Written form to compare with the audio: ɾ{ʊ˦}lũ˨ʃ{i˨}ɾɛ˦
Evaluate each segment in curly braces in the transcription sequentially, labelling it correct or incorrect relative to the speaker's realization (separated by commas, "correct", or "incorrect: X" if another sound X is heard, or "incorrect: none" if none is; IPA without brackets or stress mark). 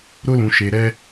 correct, incorrect: e˨